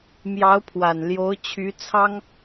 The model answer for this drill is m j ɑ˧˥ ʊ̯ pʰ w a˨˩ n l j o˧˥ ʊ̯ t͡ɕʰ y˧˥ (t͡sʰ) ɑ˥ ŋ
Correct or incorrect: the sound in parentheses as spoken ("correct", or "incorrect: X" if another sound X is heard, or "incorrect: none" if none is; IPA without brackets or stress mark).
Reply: correct